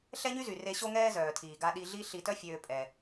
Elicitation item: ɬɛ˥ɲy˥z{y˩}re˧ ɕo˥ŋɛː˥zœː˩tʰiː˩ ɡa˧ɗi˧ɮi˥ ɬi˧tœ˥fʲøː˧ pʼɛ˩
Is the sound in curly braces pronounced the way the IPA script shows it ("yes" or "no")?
yes